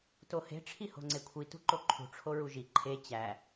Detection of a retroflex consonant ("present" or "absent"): present